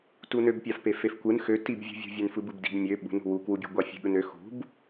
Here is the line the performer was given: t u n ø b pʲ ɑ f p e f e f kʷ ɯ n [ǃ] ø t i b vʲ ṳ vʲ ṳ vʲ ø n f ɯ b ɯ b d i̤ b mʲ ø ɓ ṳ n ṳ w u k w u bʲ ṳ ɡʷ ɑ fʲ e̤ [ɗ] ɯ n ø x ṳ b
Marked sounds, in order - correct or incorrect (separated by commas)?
incorrect, incorrect